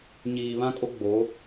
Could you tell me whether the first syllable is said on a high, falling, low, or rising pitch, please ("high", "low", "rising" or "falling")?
low